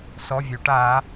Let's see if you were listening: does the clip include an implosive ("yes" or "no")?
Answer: no